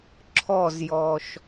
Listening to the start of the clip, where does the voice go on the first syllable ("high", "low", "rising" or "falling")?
falling